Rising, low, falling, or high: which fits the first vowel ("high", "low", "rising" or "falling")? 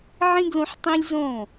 high